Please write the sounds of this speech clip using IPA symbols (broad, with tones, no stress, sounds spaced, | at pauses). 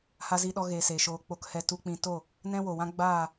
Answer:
h a˧ z i˧ ɗ ɔ˧ ɣ eː˨ s eː˨ ʃ oː˧ k͡p o˧ k h ɛ˧ t u˧ k͡p ĩ˧ t o˦˨ | n ɛ̃˦ w o˨ w ã˦ ɡ͡b aː˦˨